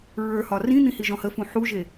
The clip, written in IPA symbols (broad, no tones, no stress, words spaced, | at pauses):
ɹə˞hɒ rĩn̪ĩhiʒɔ̃ həfũ ħuʒe